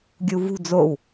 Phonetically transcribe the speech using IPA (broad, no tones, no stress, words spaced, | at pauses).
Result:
ɡʲuvṳ d͡zow